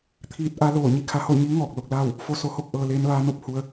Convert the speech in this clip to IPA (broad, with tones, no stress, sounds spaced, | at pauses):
t̪ʰ iː˧ t̚ ʔ a˧˥ l oː˧˩ ɲ i˥˨ kʰ a˧ h o˥˨ ɲ iː˧˥ ŋ ɔː˧˩ k̚ l o˥˨ k̚ l aː˥˨ w | f o˧˥ s o˩˧ h o˥˨ k̚ ʔ ɤː˧ l eː˧˥ n ʋ aː˧˥ n o˧ p̚ h u˧ ə̯